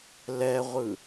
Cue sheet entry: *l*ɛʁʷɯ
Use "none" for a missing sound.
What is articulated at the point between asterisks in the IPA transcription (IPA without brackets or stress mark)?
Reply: l